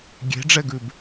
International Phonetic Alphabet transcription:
ɡʲe̤ɖ͡ʐɛɡʉb

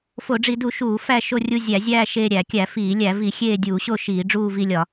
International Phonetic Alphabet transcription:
fo˧˩˧ɖ͡ʐi˧˩˧du˧˩˧ ʃuː˧˩˧ fæ˦˨ʃo˦˨ rʲu˦˨ zʲæ˧˩˧zʲæː˦˨ ʃeː˦˨ɾʲæ˧˩˧kʲæ˧˩˧fiː˧˩˧ lʲæ˧˩˧vi˧˩˧ xʲeː˦˨dʲuː˧˩˧ɕo˦˨ ʃiː˧˩˧ɖ͡ʐuː˦˨vi˦˨lʲɒ˧˩˧

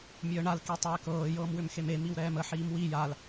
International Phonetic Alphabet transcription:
mʲəːɳal kitˤɛːkɤː jɤːmwʏmxeme miwɾɛːmə ħiːmwi jal

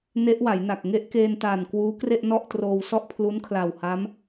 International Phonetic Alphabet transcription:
ne˦˥ʔwa˩˦jna˨˩k̚ŋe˥˩ʔ keː˧ntaː˨˩n kwuː˦˥kre˥˩ʔ nɔ˥˩ʔtroː˧w sɔ˥˩ʔpʰlu˦˥nkʰla˨˩w ha˦˥m

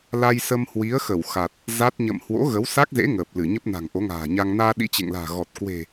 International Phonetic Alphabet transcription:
la˧jsə˧m hwi˨˦ə̯xə˧˩wxa˨˩t̚ | za˦˥t̚ ɲə̰˧˨m hwo̰˧˥ɣə˨˦wsa˦˥k̚zḛ˧˥ ŋəː˨˩p̚lɨ˧˩ɲə˦˥p̚ na̤˨˩ŋʔo˨˦ŋa̤ː˨˩ɲa˧ŋ naː˧ɗḭ˧˥t͡ɕḛ˧˨ŋla̤ː˨˩ ɣɔ˨˩t̚kwe̤˨˩

